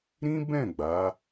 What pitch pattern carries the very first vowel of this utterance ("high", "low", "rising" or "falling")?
high